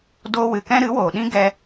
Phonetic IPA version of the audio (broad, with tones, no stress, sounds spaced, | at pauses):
d oː˧ w ɨ˨ k ɛ̃˦ ɾ ɨ˨˦ w oː˨ ɗ ĩ˦ ɡ ɛ˧